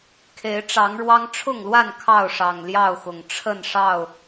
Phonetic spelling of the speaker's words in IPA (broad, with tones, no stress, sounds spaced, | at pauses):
kʰ e˨˦ ɪ̯ ʈ͡ʂ ɑ˨˦ ŋ ɻ w ɑ˦ ŋ ʈ͡ʂʰ ʊ˥˨ ŋ l w a˥˨ n kʰ ɑ˥˨ ʊ̯ ʂ ɑ˨˩ ŋ l j ɑ˥˨ ʊ̯ x ʊ˨˩ ŋ ʈ͡ʂʰ ə˥˨ n ʂ ɑ˥˨ ʊ̯